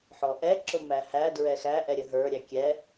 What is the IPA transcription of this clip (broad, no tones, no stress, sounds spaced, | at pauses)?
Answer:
ħ ɔ ʔ ɛ ǁ ʊ m æ h æ d ɹ ɛ x æ ʔ ɛ ɾʲ ə ɦ ə˞ ɾʲ æ kʲ ɛ